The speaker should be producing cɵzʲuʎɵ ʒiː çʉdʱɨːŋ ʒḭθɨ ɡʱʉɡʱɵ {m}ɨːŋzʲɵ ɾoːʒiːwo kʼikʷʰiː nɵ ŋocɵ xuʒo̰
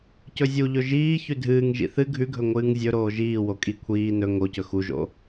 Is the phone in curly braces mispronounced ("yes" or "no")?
yes